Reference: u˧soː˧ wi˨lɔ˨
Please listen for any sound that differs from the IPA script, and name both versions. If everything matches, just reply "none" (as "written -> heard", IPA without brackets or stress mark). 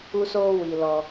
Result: none